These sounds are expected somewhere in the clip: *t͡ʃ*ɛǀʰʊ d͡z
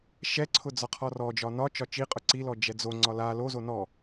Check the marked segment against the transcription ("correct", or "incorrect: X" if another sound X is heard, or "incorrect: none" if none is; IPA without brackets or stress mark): incorrect: ʃ